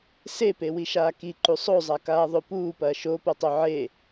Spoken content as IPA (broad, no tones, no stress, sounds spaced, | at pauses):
s e p e w i ʃ aː k i ǃ u sˤ o zˤ a k aː ðˤ o p uː p ɐː ʃ o p o tˤ o ʕ e